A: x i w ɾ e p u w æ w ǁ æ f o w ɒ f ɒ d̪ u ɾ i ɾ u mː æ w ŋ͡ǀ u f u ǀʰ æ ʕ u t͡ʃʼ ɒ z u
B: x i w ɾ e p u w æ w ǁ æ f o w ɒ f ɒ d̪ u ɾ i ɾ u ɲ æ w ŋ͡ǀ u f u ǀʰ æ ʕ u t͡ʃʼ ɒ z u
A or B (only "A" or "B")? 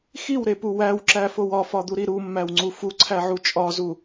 A